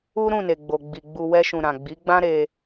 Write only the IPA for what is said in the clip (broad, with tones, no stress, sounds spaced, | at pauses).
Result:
u˦ ɾ ũ˦˨ n e˨ ɡ͡b o˨ ɡ͡b i˨ ɡ͡b u˧ w ɛ˦ ʃ ũ˧ ɾ ã˨ ɡ͡b i˨˦ ɡ͡b ã˦ ɾ e˧